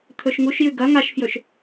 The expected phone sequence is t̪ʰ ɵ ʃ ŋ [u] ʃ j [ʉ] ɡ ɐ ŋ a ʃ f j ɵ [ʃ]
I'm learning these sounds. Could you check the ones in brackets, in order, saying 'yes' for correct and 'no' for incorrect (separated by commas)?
yes, yes, yes